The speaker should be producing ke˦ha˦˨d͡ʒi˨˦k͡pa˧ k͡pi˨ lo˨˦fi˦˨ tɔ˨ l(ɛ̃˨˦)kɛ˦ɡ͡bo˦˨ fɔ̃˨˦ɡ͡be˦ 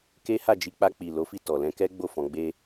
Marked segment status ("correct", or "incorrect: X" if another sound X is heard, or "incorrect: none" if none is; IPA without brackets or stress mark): correct